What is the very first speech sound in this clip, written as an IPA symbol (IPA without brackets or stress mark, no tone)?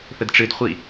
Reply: θ